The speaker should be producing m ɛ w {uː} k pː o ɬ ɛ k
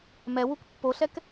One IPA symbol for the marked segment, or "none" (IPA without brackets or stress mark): u